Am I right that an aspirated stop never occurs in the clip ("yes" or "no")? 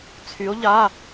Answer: no